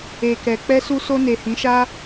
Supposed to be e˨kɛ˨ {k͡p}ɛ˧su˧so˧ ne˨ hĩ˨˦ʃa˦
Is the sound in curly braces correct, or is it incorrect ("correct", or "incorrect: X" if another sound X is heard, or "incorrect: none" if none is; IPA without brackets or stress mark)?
correct